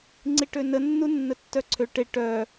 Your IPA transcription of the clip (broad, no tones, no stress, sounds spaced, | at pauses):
ŋ͡ǀ i ʈ ø n ə nː u nː ə tː œ ǀʰ ø ʈ e ʈ œ